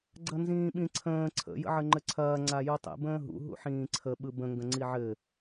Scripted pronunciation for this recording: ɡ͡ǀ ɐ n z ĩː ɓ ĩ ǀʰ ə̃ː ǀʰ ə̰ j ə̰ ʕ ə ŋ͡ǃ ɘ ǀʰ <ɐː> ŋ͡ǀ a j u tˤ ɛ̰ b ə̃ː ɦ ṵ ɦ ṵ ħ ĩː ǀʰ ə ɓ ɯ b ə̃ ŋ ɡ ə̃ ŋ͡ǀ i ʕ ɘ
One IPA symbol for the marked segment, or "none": ɐː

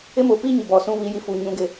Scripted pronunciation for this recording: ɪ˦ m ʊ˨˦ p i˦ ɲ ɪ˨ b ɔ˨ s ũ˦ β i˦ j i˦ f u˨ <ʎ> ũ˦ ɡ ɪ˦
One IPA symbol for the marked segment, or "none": ɲ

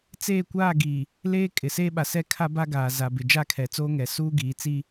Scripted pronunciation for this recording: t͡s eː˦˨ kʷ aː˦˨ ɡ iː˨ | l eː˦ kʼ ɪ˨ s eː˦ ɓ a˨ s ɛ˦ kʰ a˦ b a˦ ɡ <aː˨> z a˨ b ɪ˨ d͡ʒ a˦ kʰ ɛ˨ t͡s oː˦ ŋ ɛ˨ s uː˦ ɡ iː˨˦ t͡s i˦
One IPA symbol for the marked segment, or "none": aː˨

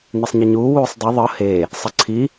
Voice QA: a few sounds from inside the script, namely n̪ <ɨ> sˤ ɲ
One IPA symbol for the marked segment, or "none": ɛ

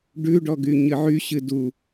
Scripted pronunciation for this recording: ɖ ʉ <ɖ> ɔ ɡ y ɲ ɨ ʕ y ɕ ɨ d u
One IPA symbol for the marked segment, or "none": ɖ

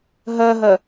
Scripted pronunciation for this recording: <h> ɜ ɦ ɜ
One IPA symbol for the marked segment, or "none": ɦ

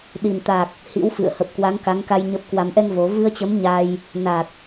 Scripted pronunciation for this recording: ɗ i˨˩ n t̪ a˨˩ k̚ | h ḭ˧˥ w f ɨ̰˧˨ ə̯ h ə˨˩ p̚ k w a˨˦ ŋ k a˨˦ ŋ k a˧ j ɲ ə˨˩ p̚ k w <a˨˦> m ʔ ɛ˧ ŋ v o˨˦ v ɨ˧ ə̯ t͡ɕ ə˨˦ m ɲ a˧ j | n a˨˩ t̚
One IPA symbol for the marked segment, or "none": a˨˩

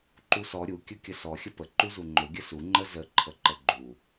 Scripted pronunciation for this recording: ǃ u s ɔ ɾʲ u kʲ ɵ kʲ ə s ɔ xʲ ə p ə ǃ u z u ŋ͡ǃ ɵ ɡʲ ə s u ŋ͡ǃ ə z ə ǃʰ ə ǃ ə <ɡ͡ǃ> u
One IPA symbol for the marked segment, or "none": ɡ͡ǃ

